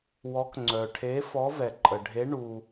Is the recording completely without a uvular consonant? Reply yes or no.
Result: yes